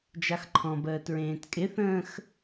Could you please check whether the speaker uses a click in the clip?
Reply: yes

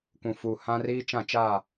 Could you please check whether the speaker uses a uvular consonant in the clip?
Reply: no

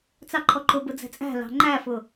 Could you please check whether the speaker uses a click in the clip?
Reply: yes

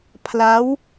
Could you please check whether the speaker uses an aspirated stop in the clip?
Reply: yes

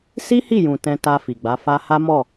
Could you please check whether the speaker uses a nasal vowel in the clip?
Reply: yes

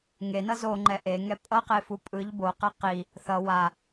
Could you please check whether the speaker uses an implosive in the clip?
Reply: no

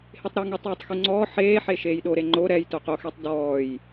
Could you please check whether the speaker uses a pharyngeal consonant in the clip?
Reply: yes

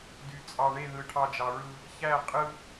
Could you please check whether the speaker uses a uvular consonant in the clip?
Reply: yes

